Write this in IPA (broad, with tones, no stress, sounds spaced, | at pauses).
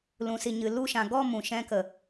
l ũ˨ s i˨ ɲ ɨ˨ l u˦˨ ʃ ã˨ ɡ ɔ˦˨ m ũ˨ ʃ ɛ̃˧ k ə˨